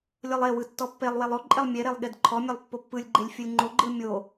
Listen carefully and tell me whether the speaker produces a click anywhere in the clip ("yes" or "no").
yes